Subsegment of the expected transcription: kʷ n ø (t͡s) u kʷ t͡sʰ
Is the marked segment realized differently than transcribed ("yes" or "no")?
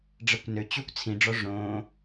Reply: yes